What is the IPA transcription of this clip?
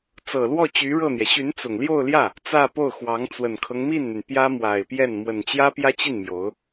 t͡s ɤ˨˩ l w ɔ˥˩ t͡ɕ y˧˥ ɻ ɤ˥˩ n̪ j ɛ˩ ɕ y˧˥ n t͡s ʊ˨˩ ŋ l j o˥˧ ʊ̯ l j ä˥˩ | t͡s ä˥˧ p o˥˩ ʊ̯ x w ɑ˧˥ ŋ t͡s w ə˨˩ n kʰ ɤ˦ ŋ m i˥˩ n n̪ y˩ n p j ä˥ m w a˨˩ ɪ̯ p j ɛ˥˩ n m w ə˨˩ n t͡ɕ j ä˥ p j ä˥ t͡ɕ i˥˩ n m j o˧˥ ʊ̯

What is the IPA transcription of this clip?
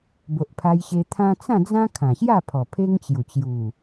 b o˨ ʔ pʰ a˧ j ɕ e˧ t̪ʰ ã˦ t͡s ã˥˧ d͡z ã˦ kʰ ã˨˩ ɕ j a˥˧ pʰ ɔ˨˩ pʰ e˦ ŋ t͡ɕ j u˨˩ t͡ɕ j u˨˩

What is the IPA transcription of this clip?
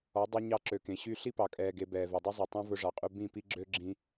ɔ˨˦ dˤ u˧ ɲ ɑ˧ ǁ ø˨ k ẽ˨ ɕ y˧ ɬ i˦ p ɑ˨ kʼ ɛː˨ ɡ e˨ b ɛː˨ v e˨ dˤ ʉ˦ zˤ ɵ˨ tˤ ĩ˦ v ɵ˧ ʐ ɑ˨ qʼ ʉ˧ b ĩ˦˨ p i˧ ɡ͡ǁ ø˦ ɡ͡ǁ ĩ˧

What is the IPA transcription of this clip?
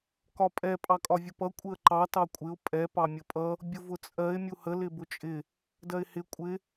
k ɒ pʼ ɛ pʼ ɑ kʼ ɒ vʲ ʊ p ʌ kʷʼ ɪ ə̯ ǃ ɑ t ɑ kʷʼ ɪ ʊ̯ pʼ ɛ p ɑ mʲ ə pʼ ʌ | bʲ ʊ v ʊ t͡sʼ ɜ ɪ̯ mʲ u h ə l ɪ b ʊ t͡ʃʼ ɪ | d ɜ ɪ̯ h ɪ kʷʼ ɪ

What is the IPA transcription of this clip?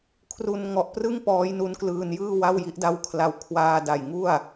kʰ r u˧ n ŋ ɔ˨˩ ʔ p r ɯ˥˩ ŋ p ɔː˦˥ j n u˦˥ n k l ɯː˧ n j ɯː˥˩ w a˥˩ w j i˦˥ ʔ d a˦˥ w kʰ l a˧ w kʰ w aː˧ d a˨˩ j ŋ u˥˩ a̯

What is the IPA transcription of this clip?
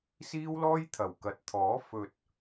s iː˥ w l ɔː˥ j t̪ʰ ɐ˨˩ w k ɐ˨˥ t̚ t̪ʰ ɔː˨˥ f ɵ˨ t̚

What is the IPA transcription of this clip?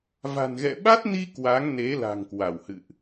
v a̤˨˩ n ɣ ɛ̰˧˨ ɓ a˦˥ t̚ n i˧ k w a˨˦ ŋ n e˨˦ l a̤˨˩ ŋ k w a˧˩ w h ɨ̰˧˨ ʔ

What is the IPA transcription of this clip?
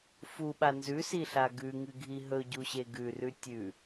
f u ɓ a n z ʉ s i ɬ a ɡ ʉ ŋ ɨ ɡʱ i ɦ ɵ ɟ u ɕ e ɡ ʉ r ʉ tʲ ʉ

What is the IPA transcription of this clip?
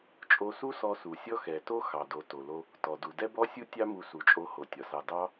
t͡ʃʼ o˧ s u˥ s ɔ˧ s u˩ sʲ ɔ˥ x ɛ˩ t o˥ x ɑ˩ d o˩ t o˩ l o˧ | t ɔ˩ d u˩ d ɛ˥ b ɔ˥ sʲ u˥ tʲ ɑ˥ m u˧ s u˩ t͡ʃʼ o˧ h o˩ tʲ ɒ˩ s ɑ˧ d ɑ˥

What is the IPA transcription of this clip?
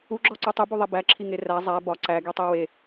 u ɡ͡ǁ ɒ ǀ u tˤ i b u ðˤ e b æ ǁʰ i ŋ e r æ zˤ æ b ɒ ǀ æ ɡ i tˤ i w e

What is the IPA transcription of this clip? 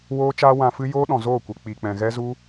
w oː˦ t͡ʃ aː˦ w ã˧ f ɨ˦ j oː˦ ɗ ɔ̃˨ z oː˦˨ kʷ e˨ k͡p i˨ k͡p ɛ̃˨ ɣ ɛ˦ z u˦

